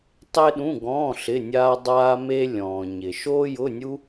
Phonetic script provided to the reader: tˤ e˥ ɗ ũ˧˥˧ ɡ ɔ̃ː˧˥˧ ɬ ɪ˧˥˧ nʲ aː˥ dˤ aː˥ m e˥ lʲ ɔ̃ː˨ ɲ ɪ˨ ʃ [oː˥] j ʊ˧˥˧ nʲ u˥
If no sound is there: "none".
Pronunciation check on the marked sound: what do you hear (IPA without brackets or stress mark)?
oː˥